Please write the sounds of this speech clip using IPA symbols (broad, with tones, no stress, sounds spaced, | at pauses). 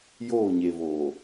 j oː˦˨ ɲ e˨ v oː˨